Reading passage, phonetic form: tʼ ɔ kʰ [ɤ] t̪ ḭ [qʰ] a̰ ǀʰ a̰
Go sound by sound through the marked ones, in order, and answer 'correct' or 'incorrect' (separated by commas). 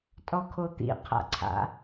incorrect, correct